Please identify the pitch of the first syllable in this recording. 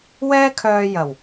high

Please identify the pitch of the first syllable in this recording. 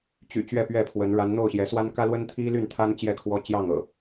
low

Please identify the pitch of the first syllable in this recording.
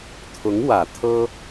rising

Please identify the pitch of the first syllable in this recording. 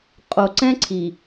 low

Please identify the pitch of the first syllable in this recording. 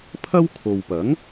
high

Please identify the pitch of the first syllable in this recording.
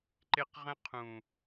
high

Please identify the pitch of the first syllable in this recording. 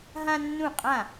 high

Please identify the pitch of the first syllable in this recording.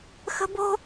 high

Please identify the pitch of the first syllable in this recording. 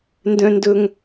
high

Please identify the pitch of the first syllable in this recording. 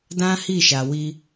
high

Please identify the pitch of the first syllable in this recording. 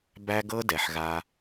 high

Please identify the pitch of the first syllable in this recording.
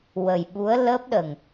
low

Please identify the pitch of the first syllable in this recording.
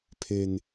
low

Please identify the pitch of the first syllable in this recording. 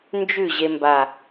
falling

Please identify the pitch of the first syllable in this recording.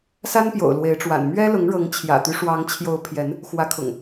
high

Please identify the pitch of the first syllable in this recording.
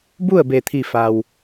falling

